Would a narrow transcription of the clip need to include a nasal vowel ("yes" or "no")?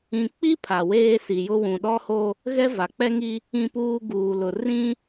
yes